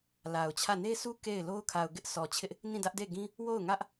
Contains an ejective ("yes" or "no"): no